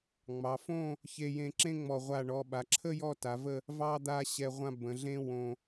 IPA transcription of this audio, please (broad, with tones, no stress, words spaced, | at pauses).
ŋ͡mɑ˩˧fõ˥˧ | çe˧jẽ˧ǁẽ˥ŋ͡mɔ˧˩ ʁʷa˧˩ɳɔ˩˧ ɓa˩˧ǁʰə˥ jɔ˥˧ta˩˧və˥˧ | vɑ˥d̪a˥˧ ɕɛ˧ʁʷã˥ bə̃˩˧ɮẽ˥ wõ˧